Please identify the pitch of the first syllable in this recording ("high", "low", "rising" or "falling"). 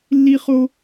high